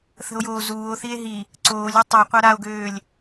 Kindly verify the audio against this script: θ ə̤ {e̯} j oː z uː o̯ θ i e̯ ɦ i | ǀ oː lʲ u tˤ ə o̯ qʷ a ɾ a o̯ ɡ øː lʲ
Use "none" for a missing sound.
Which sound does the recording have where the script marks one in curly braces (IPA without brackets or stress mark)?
o̯